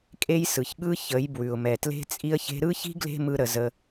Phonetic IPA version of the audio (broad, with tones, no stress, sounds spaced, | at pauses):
kʼ e˦ j s ɯ˨ ç ɠ ɯ˦ ç ə˨˦ j b w ʉ˨ ʊ̯ m ɛ˨ t l e̤˦ t͡sʼ i˧ ə̯ ç e̤˧ ɾ ɯ˦ ç i̤˦ ɡ l e̤˦ m ɯ˧ ɾ ə˨ z ə˧